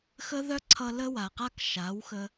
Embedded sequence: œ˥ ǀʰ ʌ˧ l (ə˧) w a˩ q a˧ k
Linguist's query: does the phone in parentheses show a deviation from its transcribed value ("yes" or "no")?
no